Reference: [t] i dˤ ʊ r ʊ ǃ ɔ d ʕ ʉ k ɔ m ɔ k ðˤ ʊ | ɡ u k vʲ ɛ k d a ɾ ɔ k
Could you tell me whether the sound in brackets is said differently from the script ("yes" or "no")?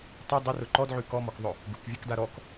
yes